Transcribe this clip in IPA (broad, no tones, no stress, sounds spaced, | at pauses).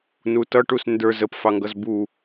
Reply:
n u t ʌ ʈ u s n d ə˞ z ə p f ɑ ŋ ɡ ʌ z b u